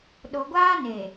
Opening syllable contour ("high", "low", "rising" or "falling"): low